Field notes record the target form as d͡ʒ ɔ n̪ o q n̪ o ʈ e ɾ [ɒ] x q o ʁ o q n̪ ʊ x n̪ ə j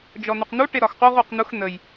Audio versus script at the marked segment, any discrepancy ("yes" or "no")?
no